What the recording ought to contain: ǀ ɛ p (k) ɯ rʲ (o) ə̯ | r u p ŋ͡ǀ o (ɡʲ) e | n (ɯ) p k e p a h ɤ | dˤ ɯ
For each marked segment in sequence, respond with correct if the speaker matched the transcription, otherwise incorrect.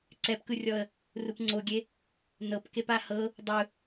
correct, incorrect: ɔ, correct, incorrect: ɤ

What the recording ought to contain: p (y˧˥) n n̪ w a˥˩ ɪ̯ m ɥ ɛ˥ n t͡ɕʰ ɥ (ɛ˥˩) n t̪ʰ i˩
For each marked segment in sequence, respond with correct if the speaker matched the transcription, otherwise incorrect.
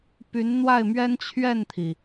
correct, correct

